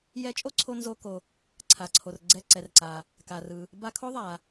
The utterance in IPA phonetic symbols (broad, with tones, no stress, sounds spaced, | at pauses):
j ɛ˧ t͡ʃʼ o˥ ǀʰ o˧ n z o˧ k o˩ | ǀʰ a˩ ǀʰ o˩ r ɡ͡ǀ ɛ˧ ǀ ɛ˩ r ǀ a˩ | k a˩ r ɯ˩ | b a˧ kʰ o˥ ðˤ a˩